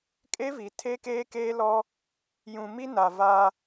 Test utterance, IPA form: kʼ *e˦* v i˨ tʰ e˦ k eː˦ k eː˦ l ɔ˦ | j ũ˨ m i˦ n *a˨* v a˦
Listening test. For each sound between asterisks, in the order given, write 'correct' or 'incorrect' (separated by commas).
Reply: correct, correct